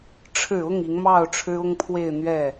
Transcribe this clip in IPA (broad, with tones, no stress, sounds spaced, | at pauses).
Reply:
ʈ͡ʂʰ ɻ̩˨˩ ʊ˥˩ ŋ i˧˥ ŋ m ɑ˥˩ ʊ̯ ʈ͡ʂʰ ɻ̩˥ ʊ˥ ŋ pʰ w e˥˧ ɪ̯ n̪ ɥ ɛ˥˩